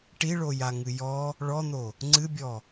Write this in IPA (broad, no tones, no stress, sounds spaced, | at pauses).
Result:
ʈ i ɭ o j a ŋ ɨ j ɔ | ɭ ɔ n̪ o | ŋ͡ǀ ɨ bʲ ɔ